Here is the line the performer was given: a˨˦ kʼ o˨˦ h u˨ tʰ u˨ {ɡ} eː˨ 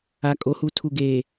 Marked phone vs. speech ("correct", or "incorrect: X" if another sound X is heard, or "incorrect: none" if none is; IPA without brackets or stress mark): correct